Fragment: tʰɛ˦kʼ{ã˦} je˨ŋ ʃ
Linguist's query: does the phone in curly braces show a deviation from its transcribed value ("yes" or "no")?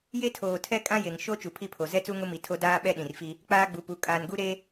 no